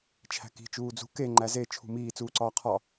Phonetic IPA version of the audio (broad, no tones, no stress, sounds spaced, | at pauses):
t͡ʃʰ æ̤ k i̤ t͡ʃ uː d͡z ṳ k e ŋ͡ǃ æ z e t͡ʃʰ ṳ m iː t͡s uː ǀ ɒː qʰ ɒ